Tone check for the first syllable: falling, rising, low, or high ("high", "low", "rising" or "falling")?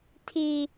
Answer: low